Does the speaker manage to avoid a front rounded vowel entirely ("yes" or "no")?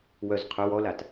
no